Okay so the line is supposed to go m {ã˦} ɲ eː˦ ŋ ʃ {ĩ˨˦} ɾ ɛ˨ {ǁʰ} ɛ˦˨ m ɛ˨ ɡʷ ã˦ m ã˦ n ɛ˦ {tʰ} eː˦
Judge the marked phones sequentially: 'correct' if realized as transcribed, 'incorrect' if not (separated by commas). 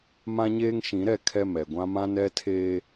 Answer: correct, correct, incorrect, correct